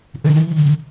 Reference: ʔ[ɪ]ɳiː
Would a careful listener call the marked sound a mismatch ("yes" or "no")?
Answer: no